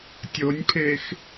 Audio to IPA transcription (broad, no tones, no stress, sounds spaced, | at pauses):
tʲ o nʲ pʰ e x